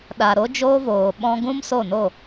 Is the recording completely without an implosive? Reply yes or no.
no